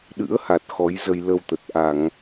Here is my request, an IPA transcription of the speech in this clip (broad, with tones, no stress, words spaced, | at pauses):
ɗɨ̰˧˥ə̯ha˨˩t̚ xɔ˨˦jzə˧j lə˧wt̪ə˨˩t̚ ʔa˧˩˨ŋ